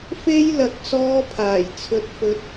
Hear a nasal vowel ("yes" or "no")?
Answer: no